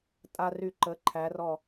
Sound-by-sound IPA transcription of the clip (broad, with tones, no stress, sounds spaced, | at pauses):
tʼ a˧ r y˧˩ ǃ ə˩˧ ǃʰ æ˩˧ r ɔ˧˩